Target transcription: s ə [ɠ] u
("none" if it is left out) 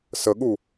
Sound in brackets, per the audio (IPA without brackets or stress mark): ɠ